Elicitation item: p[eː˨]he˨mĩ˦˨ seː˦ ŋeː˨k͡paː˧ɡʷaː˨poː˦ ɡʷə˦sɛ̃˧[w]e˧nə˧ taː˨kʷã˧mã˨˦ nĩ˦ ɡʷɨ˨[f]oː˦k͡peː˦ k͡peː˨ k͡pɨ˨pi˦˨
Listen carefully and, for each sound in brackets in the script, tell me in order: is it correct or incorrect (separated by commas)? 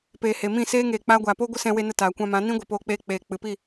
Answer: correct, correct, incorrect